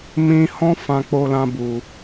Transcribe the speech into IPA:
m ĩ˧ h ɔ̃˦ f ã˧ k͡p o˧ l ã˧ b u˧

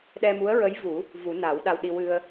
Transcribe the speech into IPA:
ɗ ɛ˧ m u˧˥ ə̯ ɹ ə˧˥ j v u˨˩˦ | v u˨˩˦ n a˨˩˦ w ɗ a˧ w ɗ i˧ w ɨ˧ ə̯

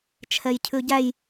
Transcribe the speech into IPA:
t͡ʃʰ ɛ j cʰ ʉ ɟ æ j

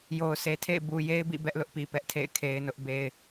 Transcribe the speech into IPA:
j o˨ ʊ̯ s e˨ tʰ ḛ˦˨ ɪ̯ b u˨ j e˦ ɪ̯ b ḭ˦˨ b ɛ˦ ʔ l ʊ˦ ʔ p i˨ p ɛ˦ ʔ tʰ ḛ˦˨ ɪ̯ kʰ e˦ ɪ̯ n ʊ˦ ʔ b e˦ ɪ̯

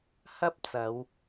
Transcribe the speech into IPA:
h ɐ˥ p̚ t͡s ɐ˨˧ w

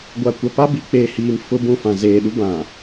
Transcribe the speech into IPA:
ɡʷ a˨ kʷ a˨ p a˦ b i˨ k͡p eː˨ h iː˨ m f ʊ˦ b ũ˦˨ f ã˨ z eː˨ ɗ u˦ b ã˨

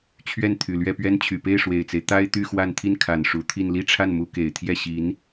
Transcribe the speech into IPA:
t͡ɕʰ ɥ ɛ˥˩ n t̪ʰ y˨˩ l ɥ ɛ˥˩ p ɥ ɛ˥ n t͡ɕʰ y˨˩ p e˥˩ ɪ̯ ʂ w e˨˩ ɪ̯ t͡s e˦ ɪ̯ t̪ a˥ ɪ̯ t̪ y˥˧ x w a˥˧ n t̪ʰ i˥˩ n kʰ a˨˩ n ʂ u˧˥ t̪ʰ i˥˧ n l i˥˧ ʈ͡ʂʰ a˥˩ n m u˥ k e˨˩ ɪ̯ t̪ʰ j ɛ˥˩ ɕ i˧˥ n

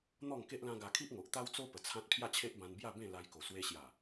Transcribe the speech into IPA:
n̪ ɔ˥˧ ŋ k e˦ ʔ l ã˦ ɡ a˧ kʰ i˦ ʔ ŋ o˨ ʔ t̪ a˦ w t͡s o˦ p ə˨˩ t͡sʰ ã˦ t̚ pʰ j a˥˧ t͡ɕʰ e˦ ʔ b ã˧ n b j a˥˧ b ẽ˥˧ l a˧ j k o˨˩ s w e˧ ɕ j a˨˩

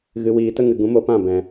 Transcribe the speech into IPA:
ɣ ɨ˨ w iː˨ t ə˦ ŋ ɨ˨ ɡ ũ˨˦ m o˧ p ã˦˨ b ɛ̃˨

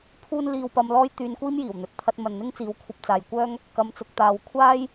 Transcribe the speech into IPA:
pʰ uː˥ n l iː˧ w p ɐ˧ m l ɔː˥ j t̪ yː˧ n kʷ iː˥ m j iː˨˩ w n̪ ɵ˨˥ t̚ t̪ʰ ɐ˧ t̚ m ɐ˨ n n̪ ɪ˥ ŋ t͡s iː˨˥ w kʷʰ ɐ˨ p̚ t͡s aː˨ j kʷ œː˥ ŋ | k ɐ˧ m t͡s ʊ˧ k̚ t̪ aː˧ w kʷʰ aː˥ j

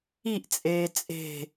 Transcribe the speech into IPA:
i ʔ t͡sʼ eː t͡sʼ e̤

